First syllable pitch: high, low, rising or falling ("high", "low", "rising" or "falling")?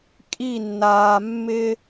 falling